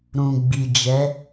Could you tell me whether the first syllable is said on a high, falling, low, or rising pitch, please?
low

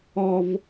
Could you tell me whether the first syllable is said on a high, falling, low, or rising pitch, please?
high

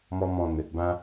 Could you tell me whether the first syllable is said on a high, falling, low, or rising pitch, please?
high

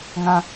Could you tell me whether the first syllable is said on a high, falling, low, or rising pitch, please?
low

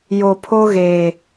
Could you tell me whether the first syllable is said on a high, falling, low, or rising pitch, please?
low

